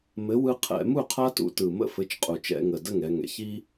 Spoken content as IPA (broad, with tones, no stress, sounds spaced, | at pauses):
m ɘ˨˥ w ɯ˦ qʰ ɛ̰˧˩˧ m u˥˩ qʰ a˦ t ṵ˩˧ t ɯ˨˩ m ə̰˥˩ f ɘ˨˥ t͡ʃ qʼ u˨˩ t͡ʃ ɛ̰˧˩˧ ŋ ə˨˩ d ə˥˩ ŋ ɛ˩˧ ŋ ɛ̰˩˧ ç i˦